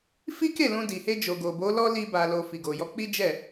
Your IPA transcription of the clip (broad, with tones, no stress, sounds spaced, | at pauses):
f i˦ k e˦˨ l ũ˧ d i˨ h e˧ d͡ʒ o˨ ɡ o˨ b o˨˦ l ɔ˦ l i˧ b a˨ l o˨ f i˨ ɡ o˨ j ɔ˧ k͡p i˦ d͡ʒ ɛ˦˨